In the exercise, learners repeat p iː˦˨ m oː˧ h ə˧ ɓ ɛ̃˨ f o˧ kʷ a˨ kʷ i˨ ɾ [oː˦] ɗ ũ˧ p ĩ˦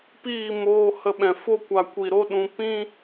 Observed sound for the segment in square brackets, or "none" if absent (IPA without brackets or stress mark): o˦